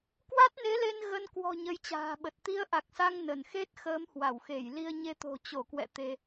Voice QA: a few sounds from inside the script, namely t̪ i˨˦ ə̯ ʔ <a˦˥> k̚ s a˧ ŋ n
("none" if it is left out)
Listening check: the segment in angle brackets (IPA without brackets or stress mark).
a˨˩